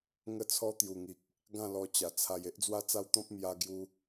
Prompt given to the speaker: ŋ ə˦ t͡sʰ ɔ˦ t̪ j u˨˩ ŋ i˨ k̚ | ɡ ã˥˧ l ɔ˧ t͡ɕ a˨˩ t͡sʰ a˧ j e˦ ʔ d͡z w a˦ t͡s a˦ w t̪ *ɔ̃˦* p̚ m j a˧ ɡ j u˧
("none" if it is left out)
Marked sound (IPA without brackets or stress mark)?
ɔ̃˦